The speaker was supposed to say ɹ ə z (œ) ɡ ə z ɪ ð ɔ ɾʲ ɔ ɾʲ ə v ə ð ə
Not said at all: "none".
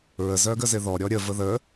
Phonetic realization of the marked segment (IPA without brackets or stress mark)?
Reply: œ